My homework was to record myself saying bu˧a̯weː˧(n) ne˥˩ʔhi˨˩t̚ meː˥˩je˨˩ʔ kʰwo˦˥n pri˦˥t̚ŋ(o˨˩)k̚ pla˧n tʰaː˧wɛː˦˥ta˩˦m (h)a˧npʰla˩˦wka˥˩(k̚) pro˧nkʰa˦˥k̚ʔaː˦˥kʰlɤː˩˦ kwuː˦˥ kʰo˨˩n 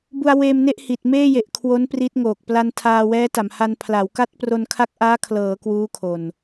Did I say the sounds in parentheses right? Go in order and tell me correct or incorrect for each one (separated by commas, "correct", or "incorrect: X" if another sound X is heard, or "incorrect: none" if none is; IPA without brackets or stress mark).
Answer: incorrect: m, correct, correct, incorrect: t̚